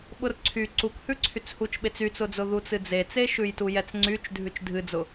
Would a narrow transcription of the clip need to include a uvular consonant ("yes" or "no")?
no